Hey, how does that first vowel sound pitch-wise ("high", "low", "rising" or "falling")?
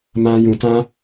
high